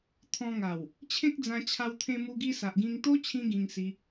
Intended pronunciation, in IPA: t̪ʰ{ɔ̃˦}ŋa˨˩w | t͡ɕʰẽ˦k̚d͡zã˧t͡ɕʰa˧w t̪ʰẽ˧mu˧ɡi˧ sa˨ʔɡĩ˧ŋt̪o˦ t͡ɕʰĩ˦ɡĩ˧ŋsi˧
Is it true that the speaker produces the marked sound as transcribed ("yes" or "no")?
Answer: no